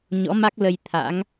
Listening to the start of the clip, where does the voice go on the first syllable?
rising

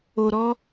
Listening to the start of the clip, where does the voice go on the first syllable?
low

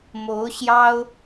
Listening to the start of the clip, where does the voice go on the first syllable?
rising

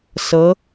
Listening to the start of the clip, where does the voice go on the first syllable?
rising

